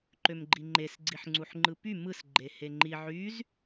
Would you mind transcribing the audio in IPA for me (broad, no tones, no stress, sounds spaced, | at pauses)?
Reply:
ǃ ø m ɡ͡ǃ i ŋ͡ǃ e s ɡ͡ǀ i ħ ŋ͡ǀ u ħ ŋ͡ǃ ɯ p y m ɯ s ɡ͡ǃ e h e ŋ͡ǃ i ʕ y z